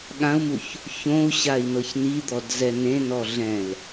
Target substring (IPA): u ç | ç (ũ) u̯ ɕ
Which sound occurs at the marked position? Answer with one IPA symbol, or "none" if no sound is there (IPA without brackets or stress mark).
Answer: õ